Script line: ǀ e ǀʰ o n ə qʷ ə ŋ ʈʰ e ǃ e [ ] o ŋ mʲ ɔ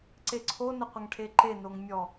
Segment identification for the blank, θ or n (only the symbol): n